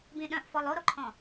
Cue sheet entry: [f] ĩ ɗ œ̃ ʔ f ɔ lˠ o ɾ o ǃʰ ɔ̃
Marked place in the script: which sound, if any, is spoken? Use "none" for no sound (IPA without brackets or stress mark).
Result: b